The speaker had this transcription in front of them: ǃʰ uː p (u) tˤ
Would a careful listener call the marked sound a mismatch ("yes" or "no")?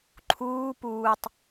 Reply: yes